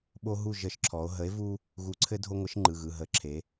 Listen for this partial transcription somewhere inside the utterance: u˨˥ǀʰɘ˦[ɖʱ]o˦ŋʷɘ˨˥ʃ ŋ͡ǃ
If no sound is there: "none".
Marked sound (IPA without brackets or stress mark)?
dʱ